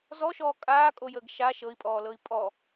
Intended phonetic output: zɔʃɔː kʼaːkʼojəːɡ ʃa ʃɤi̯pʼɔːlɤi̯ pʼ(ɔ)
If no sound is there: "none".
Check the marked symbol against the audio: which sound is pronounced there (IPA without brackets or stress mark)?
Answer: ɔ